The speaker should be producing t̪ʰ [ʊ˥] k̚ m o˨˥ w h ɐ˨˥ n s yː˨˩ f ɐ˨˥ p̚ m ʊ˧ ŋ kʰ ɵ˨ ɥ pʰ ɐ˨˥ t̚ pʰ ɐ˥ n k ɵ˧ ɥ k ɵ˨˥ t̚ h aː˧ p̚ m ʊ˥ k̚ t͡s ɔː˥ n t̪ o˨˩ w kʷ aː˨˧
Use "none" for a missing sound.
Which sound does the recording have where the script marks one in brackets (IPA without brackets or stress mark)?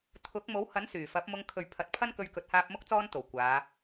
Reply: ʊ˨˥